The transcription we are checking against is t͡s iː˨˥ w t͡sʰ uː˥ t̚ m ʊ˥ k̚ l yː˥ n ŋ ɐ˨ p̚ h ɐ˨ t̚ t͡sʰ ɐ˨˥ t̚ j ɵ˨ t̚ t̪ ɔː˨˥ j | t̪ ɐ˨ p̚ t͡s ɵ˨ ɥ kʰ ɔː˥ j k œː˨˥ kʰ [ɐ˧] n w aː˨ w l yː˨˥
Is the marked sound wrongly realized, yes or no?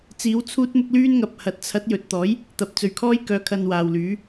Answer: no